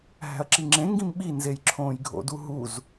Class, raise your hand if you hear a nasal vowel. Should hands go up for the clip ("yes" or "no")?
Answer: yes